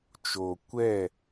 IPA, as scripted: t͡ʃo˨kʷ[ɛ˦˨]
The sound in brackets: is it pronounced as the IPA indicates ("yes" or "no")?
yes